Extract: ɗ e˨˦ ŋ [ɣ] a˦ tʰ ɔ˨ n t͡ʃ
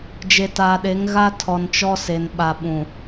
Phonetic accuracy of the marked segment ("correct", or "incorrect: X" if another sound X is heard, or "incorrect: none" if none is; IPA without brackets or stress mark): correct